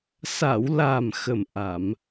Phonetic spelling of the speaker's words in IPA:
s a˨˩˨ w l a˨˩ m x ə˨˩ m ʔ a˨˩˨ m

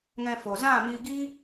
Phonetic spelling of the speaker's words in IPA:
ŋ ɛ̃˧ f o˨ z ã˦˨ m iː˧ ɡ i˦

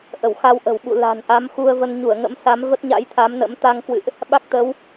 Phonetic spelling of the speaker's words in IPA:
ʔ ə˧˩ w x a˧ w ʔ ə̤˨˩ w ɓ ṵ˧˨ l a̤˨˩ n ʔ a˨˦ m x u˧ ə̯ v ə˧ n ɲ u˧˩ ə̯ ŋ ə̰˧˥ m s a˨˦ m v ə˦˥ t̚ ɲ a̰˧˥ j t̪ʰ a˨˦ m n ə̰˧˥ m t̪ a˧ ŋ k w ɨ̰˧˨ ʔ | ɓ a˦˥ k̚ t̪ ə˨˦ w

